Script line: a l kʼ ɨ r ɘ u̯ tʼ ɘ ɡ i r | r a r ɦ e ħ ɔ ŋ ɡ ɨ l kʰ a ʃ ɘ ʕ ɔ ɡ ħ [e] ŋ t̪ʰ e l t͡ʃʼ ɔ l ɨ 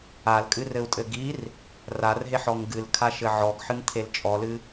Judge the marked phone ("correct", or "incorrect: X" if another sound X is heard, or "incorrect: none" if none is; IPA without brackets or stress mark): incorrect: ɨ